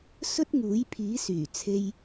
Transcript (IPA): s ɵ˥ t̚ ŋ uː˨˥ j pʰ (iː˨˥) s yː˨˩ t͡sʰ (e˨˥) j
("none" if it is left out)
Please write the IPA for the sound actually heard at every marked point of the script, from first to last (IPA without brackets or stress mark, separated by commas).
iː˨˥, e˧